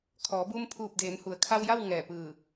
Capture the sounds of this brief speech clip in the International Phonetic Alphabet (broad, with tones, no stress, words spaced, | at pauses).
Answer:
kʰɔː˩˧buː˧mpʰuː˧˩p̚ deː˩˧nhu˩ə̯kʰa˧wja˥˨w ŋɛː˧˩pɯː˧˩